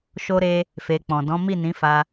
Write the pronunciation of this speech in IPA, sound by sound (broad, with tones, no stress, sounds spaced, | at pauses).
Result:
ʃ o˧ ɾ e˧ | f e˨ k͡p ɔ̃˨ d ɔ̃˨˦ m i˦˨ n ĩ˨˦ f a˧